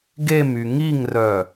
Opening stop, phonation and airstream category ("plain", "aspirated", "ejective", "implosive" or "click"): plain